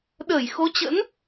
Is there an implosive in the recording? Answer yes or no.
yes